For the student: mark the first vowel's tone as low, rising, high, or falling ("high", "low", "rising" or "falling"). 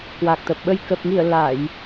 low